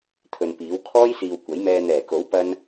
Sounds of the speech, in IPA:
t̪ʰ ɵ˨ n p iː˨˥ w kʰ ɔː˥ j s iː˨ w kʷ ɐ˨˥ j m ɛː˧ n̪ ɛː˨˩ k o˨˥ w p ɐ˥ n

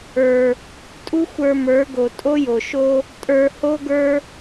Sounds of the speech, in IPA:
ə˞˨ | tʼ u˦ xʷ ə˞˧ m ə˞˨˦ ɡ o˨ tʼ o˦ j o˨ ʃ o˦ | tʼ ə˞˧ h o˦ ɡ ə˞˦

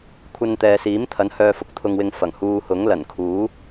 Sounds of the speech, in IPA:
kʷʰ ɐ˧ n t̪ ɛː˨ s iː˨˥ m t̪ʰ ɐ˨˥ n h œː˧ f ʊ˧ k̚ t̪ʰ ʊ˧ ŋ w ɪ˧ ŋ f ɐ˨˩ ŋ h uː˧ h ʊ˨˥ ŋ l ɐ˨˩ n kʰ uː˨˥

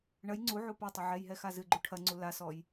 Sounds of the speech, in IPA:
ɳ ɐ j ŋ͡ǀ u ʕ u p ɐ tˤ a ʕ ɛ j ɦ ɛ x a z ɨ ɡ͡ǃ u ʈʰ ɐ ŋ͡ǀ u l a s ɔ j

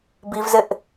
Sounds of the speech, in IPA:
b i v z ɪ ʔ

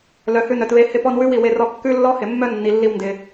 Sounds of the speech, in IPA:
l œ˨ h ʉ˧ n œ˨ t β e˧ h ɪ˧ p ɔ˧ n w ʉ˦ w i˨ w e˧ r ɔ˧ kː ʉ˦ lː ɔ˦ h ɪ˨ mː œ˦ nː i˨ lː i˧ w n d ɪ˨

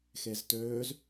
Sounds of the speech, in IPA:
x e z t øː z

